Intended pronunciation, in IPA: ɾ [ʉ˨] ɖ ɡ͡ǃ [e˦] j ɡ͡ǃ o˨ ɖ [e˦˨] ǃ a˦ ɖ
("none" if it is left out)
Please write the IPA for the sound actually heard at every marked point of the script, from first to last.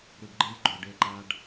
ʉ˨, e˦, e˦˨

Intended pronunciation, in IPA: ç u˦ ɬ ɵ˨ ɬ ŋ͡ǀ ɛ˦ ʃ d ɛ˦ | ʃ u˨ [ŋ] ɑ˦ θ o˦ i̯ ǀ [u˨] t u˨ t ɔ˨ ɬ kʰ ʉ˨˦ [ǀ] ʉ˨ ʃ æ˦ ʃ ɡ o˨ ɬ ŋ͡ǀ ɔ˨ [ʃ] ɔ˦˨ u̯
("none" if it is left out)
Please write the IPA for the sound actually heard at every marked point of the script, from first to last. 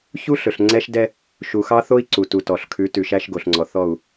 x, u˨, t, θ

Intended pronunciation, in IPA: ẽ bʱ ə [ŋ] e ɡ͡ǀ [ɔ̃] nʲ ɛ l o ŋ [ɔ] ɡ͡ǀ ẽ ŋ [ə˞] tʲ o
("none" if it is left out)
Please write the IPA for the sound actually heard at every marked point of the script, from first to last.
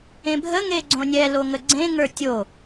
ŋ, õ, ə, ə˞

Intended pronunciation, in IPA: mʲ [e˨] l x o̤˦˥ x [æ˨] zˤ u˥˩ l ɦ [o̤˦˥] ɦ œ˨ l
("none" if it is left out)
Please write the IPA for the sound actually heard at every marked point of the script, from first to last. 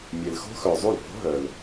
e˨, œ˨, o̤˦˥

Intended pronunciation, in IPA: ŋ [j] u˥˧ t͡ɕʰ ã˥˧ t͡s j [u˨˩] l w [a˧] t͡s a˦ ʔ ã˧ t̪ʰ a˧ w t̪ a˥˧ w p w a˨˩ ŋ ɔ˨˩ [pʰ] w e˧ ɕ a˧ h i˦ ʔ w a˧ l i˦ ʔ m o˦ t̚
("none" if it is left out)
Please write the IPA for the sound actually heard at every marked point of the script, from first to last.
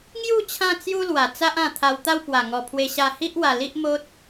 j, u˦, a˨˩, pʰ

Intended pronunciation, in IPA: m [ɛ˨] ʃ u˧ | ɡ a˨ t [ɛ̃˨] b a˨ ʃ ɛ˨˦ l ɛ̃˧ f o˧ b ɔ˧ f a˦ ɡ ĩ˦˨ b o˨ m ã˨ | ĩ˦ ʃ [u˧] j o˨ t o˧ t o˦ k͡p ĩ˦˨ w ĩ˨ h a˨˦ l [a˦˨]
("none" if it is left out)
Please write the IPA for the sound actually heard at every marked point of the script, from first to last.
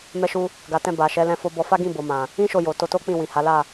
ɛ˧, ɛ̃˧, o˧, a˦˨

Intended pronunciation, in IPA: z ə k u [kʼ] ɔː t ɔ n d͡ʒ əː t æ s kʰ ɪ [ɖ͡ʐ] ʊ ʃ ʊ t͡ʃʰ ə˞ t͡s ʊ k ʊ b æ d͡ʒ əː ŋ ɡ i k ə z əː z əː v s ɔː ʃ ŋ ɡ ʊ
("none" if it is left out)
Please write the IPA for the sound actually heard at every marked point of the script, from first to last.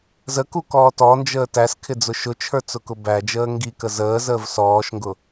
k, d͡z

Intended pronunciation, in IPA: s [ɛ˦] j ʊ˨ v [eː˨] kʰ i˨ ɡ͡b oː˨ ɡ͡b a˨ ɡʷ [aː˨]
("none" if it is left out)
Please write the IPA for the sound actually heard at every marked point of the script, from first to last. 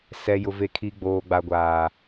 ɛ˨, e˨, aː˨

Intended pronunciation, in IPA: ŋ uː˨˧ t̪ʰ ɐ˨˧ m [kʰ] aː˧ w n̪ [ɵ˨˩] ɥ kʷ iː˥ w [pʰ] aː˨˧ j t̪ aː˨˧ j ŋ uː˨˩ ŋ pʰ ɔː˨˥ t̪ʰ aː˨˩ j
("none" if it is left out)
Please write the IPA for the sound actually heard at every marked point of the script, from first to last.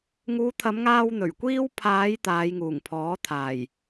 ŋ, ɵ˨˩, pʰ

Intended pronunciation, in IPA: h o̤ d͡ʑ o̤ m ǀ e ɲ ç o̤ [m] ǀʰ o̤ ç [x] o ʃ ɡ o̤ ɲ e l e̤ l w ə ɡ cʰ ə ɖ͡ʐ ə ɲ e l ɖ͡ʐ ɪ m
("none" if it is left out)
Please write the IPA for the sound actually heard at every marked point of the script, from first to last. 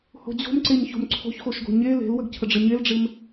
m, x

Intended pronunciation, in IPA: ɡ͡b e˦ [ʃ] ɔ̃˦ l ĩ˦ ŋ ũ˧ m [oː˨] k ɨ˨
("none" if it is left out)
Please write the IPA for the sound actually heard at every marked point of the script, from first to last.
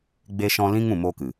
ʃ, oː˦

